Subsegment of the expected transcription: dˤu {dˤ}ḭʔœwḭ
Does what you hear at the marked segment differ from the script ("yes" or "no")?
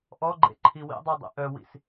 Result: no